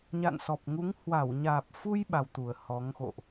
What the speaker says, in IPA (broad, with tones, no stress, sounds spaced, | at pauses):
ɲ a̰˧˨ n s ɔ˨˩ p̚ ŋ u˨˦ ŋ h w a˧˩ w ɲ aː˨˩ p̚ f u˧ j ɓ a˧ w t̪ u˨˩ ə̯ h ɔ˨˦ ŋ x o̰˧˨ ʔ